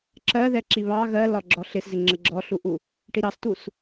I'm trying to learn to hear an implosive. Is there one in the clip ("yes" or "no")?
no